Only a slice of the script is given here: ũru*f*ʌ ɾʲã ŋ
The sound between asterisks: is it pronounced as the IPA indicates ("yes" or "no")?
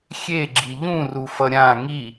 yes